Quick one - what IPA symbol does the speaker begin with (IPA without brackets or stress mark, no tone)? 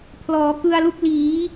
pʰ